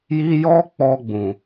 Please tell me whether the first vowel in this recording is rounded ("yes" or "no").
no